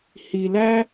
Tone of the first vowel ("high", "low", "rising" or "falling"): low